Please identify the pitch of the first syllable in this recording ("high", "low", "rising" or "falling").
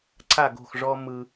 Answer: falling